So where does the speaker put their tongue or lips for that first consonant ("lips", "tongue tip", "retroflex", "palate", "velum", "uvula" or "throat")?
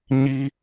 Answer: palate